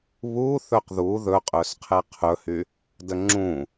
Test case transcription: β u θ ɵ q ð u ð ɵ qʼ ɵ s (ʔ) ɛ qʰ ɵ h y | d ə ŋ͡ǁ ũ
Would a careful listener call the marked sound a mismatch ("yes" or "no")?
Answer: yes